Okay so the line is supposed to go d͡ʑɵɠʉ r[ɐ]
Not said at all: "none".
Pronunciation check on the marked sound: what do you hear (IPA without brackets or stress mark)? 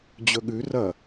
ɐ